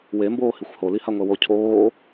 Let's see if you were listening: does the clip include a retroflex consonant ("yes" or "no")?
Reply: no